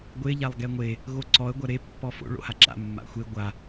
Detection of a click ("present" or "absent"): present